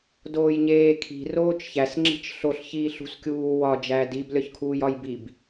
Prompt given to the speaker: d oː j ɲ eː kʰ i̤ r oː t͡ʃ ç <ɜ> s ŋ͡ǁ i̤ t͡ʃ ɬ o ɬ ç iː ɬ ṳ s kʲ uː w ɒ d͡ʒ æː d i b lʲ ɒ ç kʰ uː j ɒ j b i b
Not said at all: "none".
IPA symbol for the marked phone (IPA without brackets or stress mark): æ